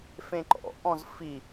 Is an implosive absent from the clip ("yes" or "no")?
yes